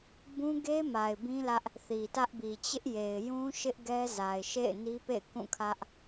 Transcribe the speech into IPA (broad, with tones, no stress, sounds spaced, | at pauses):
b ũ˦ ɡ e˦ m a˨ ɪ̯ b ĩ˦ l ä˦ ʔ | θ i˨ t ä˦ ʔ b i˨ t͡ɕ ɪ˦ ʔ j e˨ ɪ̯ j ũ˦ ʃ ɪ˦ ʔ ɡ ɛ˦ z a˨ ɪ̯ ʃ ḛ˦˨ ɪ̯ n i˦ p ḛ˦˨ ɪ̯ k ũ˦˨ kʰ ä˦ ʔ